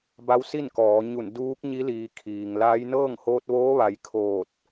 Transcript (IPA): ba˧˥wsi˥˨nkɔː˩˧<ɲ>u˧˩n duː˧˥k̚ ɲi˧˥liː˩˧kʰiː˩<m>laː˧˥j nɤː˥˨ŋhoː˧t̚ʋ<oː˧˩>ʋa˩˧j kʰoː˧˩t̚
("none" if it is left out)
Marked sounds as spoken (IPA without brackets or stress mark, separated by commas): ɲ, ŋ, oː˧˥